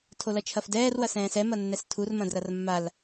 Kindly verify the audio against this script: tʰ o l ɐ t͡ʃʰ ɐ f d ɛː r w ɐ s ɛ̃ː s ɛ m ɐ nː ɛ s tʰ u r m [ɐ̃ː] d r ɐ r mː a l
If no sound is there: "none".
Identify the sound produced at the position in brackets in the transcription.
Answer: ɐ̃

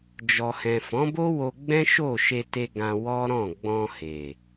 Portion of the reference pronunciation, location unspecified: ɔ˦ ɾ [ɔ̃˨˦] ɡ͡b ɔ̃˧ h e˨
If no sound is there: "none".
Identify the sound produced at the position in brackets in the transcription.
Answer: ɔ̃˦˨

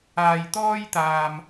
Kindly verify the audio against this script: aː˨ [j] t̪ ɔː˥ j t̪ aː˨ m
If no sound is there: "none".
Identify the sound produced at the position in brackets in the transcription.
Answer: j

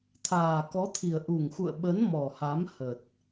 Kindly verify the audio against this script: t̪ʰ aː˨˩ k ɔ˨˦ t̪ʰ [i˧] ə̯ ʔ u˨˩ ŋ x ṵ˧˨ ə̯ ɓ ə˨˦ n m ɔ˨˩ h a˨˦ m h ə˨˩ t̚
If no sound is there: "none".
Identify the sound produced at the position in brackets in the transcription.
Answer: i˨˩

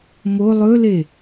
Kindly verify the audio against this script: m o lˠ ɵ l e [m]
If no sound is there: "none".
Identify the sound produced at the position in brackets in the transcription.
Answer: none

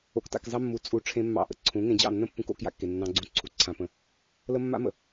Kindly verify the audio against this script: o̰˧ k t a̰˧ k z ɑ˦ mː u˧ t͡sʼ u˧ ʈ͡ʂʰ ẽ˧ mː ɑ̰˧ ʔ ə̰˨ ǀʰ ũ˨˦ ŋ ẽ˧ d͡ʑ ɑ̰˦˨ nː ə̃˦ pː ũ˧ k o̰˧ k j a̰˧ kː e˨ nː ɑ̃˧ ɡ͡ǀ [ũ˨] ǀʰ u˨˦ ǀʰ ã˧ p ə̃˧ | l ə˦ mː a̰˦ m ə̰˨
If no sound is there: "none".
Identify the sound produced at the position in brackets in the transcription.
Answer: ũ˧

